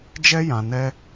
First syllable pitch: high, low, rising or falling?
high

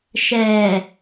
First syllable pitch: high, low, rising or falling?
low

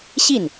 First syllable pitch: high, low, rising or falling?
falling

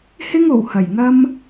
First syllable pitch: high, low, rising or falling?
high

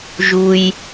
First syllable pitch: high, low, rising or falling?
low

